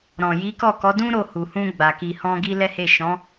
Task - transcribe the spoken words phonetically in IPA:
ɾɔ̃˨ji˨˦ kɔ˦˨kɔ˨˦dũ˦ ɾo˦˨hu˨hũ˧ ɡ͡ba˨ ki˨hɔ̃˧ ɡi˧ lɛ˦he˦˨ ʃɔ̃˨˦

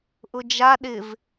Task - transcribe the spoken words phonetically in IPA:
ʔʊd͡ʒa ɗɪv

